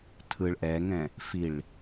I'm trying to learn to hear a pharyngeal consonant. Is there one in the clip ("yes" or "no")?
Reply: no